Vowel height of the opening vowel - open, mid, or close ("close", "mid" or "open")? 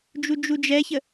close